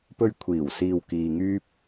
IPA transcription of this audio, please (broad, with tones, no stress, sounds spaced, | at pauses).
p ɵ˧ ɥ kʷʰ iː˨˩ w s iː˨ w k iː˧ ŋ yː˥ p̚